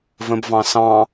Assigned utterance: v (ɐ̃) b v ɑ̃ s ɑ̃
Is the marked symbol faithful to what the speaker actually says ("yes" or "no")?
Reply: no